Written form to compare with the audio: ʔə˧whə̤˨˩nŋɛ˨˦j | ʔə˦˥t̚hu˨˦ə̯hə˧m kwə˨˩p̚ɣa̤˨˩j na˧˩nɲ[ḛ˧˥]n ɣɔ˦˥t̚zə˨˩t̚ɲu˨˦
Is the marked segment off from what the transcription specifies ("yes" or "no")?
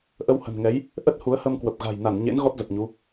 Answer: no